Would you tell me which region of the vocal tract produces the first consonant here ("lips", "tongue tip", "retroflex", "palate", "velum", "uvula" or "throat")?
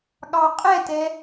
velum